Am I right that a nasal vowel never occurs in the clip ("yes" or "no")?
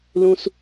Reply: no